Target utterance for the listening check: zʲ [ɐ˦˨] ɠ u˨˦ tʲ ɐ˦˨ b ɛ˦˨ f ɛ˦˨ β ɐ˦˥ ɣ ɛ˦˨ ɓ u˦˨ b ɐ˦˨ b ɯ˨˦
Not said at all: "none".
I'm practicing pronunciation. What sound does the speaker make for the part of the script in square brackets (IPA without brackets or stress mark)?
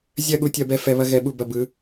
ɐ˦˨